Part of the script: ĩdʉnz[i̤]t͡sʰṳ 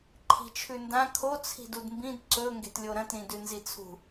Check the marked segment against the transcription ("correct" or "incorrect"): incorrect